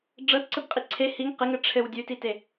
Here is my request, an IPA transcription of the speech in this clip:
ɖ͡ʐɤtǀɘbqʼi ǀʰe hiŋ qɘŋɘ ʈ͡ʂʰɘw dʲʉtite

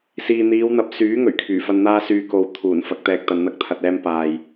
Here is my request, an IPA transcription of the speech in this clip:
siː˨n̪iː˨˧wn̪ɐ˨˥p̚ syː˨˥ ŋɵ˨˩ɥkʰyː˨˩fɐ˧n n̪aː˧syː˨ko˨w t̪ʰuː˨˩n fɐ˧k̚t̪ɛː˧k̚ t̪ɐ˧nn̪ɐ˥k̚t̪ʰɐ˧t̚ ɛː˧mpaː˨j

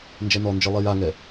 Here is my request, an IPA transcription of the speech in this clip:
nd͡ʒɛnɔnd͡ʒɨ lˠijaŋɛ

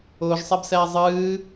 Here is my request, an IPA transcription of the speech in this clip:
ʊːʒsˤɛbsɛː zˤɨː

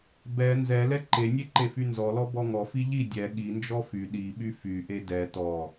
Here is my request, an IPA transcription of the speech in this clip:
bɛ nzɛ lɛǃenʲe ǃefynzɔlɔ bɔŋɔfi ʎi dʲɛ ɠind͡ʒɔ fy ɗiɓy fyʔe dɛ tɔ

